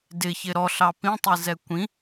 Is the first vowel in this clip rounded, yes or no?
no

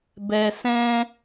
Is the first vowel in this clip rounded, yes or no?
no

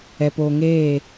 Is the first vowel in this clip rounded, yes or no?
no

